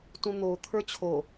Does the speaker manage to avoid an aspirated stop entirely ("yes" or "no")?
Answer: no